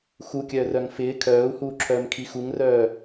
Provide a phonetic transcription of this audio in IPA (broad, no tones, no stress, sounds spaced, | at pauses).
x u kʲ œː r œ ŋ f ɪː kʰ œː u̯ h uː ǁʰ œː m kʰ i x u ŋ r œː